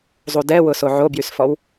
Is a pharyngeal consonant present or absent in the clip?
present